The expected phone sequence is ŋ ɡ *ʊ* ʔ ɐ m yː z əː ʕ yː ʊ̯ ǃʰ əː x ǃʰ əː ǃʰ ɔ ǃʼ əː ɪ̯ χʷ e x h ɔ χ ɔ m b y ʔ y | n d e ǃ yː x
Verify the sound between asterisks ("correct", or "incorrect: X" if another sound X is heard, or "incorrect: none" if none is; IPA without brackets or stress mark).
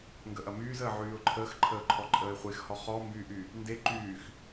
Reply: incorrect: ə